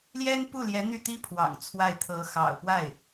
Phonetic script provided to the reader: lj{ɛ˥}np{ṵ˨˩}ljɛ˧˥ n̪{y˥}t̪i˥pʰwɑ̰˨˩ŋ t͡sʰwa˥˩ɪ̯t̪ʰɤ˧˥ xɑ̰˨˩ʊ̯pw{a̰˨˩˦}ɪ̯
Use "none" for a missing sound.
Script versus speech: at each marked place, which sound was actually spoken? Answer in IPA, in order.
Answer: ɛ˥, u˥˩, y˥˩, a˥˩

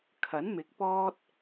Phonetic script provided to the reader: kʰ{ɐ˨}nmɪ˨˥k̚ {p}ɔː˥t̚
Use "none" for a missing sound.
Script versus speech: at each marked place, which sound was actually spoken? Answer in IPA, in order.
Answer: ɐ˨˥, p

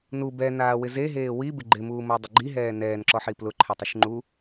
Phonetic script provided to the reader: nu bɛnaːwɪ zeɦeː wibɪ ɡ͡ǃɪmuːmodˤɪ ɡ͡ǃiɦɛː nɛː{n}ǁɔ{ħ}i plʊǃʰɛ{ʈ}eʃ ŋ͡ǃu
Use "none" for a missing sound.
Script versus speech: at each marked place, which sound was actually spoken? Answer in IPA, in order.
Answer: n, ħ, tˤ

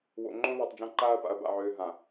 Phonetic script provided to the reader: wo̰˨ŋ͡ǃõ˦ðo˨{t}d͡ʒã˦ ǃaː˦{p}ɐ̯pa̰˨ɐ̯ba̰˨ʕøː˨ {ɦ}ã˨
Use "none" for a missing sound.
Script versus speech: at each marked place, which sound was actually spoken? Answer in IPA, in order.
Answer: tˤ, none, ɦ

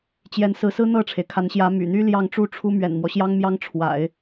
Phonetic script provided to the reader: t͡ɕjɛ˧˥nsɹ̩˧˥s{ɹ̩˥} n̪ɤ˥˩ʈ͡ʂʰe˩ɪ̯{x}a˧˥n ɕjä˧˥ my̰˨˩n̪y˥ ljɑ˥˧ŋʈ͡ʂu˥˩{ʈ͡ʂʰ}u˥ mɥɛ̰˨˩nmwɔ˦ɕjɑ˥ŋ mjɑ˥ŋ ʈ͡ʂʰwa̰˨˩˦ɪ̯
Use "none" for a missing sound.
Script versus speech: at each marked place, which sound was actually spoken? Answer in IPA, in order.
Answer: ɹ̩˥, kʰ, ʈ͡ʂʰ

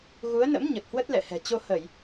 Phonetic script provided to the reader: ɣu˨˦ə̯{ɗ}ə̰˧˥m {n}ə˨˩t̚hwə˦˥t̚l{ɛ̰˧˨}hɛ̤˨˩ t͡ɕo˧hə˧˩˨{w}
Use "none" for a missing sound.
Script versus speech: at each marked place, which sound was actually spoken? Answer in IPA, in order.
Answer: n, ɲ, ɛ̰˧˨, j

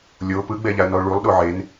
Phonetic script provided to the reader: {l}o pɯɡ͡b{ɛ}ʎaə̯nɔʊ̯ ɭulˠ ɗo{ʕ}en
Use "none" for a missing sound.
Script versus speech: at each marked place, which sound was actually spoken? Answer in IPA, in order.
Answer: lʲ, ɛ, ʕ

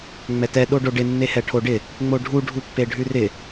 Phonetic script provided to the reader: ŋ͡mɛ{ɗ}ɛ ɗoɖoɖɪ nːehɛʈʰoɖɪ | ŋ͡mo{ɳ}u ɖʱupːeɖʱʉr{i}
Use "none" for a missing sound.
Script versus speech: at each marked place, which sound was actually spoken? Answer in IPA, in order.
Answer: t, ɖʱ, ɪ

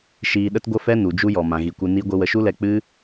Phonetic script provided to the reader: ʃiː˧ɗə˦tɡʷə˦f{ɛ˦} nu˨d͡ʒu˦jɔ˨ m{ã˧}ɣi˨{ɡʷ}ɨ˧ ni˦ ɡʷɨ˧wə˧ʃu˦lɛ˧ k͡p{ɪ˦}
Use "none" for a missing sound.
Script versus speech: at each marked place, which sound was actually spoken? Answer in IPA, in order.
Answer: ɛ˦, ã˨, kʷ, ɨ˦

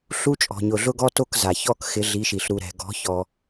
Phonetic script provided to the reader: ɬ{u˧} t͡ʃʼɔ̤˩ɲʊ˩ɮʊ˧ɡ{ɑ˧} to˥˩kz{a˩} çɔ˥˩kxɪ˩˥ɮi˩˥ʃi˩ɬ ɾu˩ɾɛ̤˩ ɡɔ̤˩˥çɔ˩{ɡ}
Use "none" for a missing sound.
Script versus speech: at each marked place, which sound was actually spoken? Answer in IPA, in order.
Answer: u˧, ɔ˧, a˩, none

